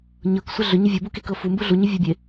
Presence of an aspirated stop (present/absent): absent